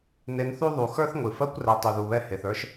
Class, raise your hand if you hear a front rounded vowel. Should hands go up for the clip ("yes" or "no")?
yes